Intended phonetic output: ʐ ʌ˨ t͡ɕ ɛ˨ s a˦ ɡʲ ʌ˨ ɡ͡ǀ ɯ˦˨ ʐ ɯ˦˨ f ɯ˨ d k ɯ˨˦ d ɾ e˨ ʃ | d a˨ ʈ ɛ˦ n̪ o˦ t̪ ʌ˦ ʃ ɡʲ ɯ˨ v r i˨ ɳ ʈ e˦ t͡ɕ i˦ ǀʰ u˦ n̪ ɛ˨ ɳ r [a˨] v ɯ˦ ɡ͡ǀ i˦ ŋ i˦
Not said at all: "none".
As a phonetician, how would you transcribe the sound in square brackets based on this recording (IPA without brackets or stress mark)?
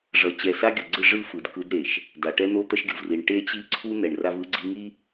a˦